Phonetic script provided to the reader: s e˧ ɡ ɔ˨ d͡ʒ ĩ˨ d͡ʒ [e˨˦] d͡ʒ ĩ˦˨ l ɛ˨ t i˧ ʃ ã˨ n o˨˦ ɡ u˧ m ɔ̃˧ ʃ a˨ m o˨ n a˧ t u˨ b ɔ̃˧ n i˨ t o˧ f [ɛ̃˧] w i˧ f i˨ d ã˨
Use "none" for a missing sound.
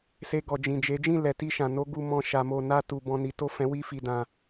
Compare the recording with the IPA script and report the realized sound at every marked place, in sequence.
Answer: e˨˦, ɛ̃˧

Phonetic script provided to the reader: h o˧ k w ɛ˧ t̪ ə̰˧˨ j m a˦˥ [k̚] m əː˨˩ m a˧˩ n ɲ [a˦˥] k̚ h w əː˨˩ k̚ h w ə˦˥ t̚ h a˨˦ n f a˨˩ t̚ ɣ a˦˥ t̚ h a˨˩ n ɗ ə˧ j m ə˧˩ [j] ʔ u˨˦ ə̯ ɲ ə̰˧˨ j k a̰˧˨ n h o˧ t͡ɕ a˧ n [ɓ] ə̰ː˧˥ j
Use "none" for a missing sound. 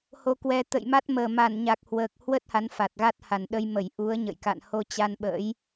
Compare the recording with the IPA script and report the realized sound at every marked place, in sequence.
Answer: t̚, a˨˩, j, ɓ

